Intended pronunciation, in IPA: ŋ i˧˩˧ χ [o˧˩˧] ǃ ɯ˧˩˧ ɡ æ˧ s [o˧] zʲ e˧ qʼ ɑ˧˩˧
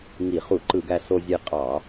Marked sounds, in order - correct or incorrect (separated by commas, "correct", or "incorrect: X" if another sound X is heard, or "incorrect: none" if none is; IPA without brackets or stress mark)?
incorrect: u˧˩˧, correct